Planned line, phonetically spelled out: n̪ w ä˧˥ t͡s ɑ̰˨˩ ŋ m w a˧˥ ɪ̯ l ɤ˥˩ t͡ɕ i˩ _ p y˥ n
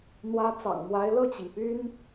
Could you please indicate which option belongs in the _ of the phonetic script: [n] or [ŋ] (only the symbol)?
ŋ